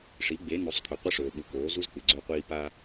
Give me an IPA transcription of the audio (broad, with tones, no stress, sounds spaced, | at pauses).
ʂ i˨˦ ɡ͡b e˨˦ n u˨ sˤ kʰ ɵ˨ qʷ ɐ˦ ʂ ɵː˨ ɓ u˨ k oː˨˦ z u˦ z k͡p ɨ˨ ɡ͡ǀ ɵː˦ qʷ iː˦ p a˦